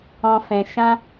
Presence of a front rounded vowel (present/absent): absent